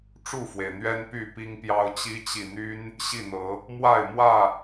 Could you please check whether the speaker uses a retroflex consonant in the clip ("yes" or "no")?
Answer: yes